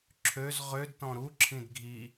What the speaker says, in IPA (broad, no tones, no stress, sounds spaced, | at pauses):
ǁʰ ø z ʁ ø d t ɔ̃ ɾ u ǁʰ ĩ d ɡʱ i